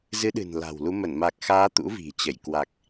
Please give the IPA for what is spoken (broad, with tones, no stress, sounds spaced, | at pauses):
z ɨ˨˦ ɗ ɨ̤˨˩ n l a̤˨˩ w l u˨˦ m ə˧˩ n m a˨˩ k̚ x aː˨˦ t̪ ṵ˧˥ v i̤˨˩ t͡ɕ ə˧˩ j k w a˨˩ k̚